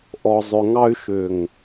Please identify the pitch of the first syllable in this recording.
low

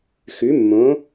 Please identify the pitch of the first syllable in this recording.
rising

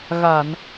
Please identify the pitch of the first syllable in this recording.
low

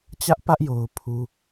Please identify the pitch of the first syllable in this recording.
high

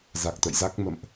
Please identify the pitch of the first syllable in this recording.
low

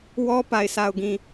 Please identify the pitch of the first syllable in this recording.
high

